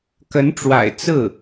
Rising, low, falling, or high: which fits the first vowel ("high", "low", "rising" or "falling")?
rising